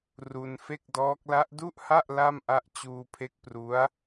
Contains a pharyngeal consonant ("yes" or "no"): no